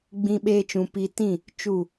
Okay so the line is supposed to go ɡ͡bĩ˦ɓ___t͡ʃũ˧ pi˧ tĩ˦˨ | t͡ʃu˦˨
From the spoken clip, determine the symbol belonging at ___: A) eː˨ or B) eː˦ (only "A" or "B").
B